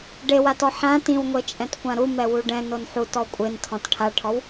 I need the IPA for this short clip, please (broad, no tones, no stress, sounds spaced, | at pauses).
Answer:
ɖ e w a t ɔ ħ ã t ĩ w ŋʷ e t͡ʃʼ ɛ̃ t kʷ ã ɾ u m ɛ w u ɖ ɛ̃ n o n ħ u t ɔ kʷʼ e n tʰ ɔ̃ t ʈʰ a ʈʰ ɔ w